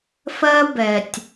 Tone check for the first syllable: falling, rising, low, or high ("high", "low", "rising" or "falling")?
high